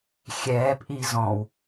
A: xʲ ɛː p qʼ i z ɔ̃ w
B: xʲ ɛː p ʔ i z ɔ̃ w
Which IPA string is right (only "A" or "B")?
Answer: B